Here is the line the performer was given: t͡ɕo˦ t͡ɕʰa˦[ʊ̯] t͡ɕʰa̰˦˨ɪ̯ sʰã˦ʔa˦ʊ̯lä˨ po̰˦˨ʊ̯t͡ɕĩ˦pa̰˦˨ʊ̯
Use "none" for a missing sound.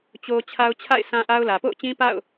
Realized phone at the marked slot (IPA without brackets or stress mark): ʊ̯